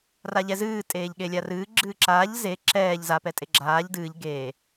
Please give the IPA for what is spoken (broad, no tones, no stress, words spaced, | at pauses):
raʎɛzɨː tʼeːʎɠelʲarɨː ɡ͡ǁɨːǁaːʎ ze ǁɛːʎ za pɛtʼeɡ͡ǁaːʎ dɨːʎ ɡeː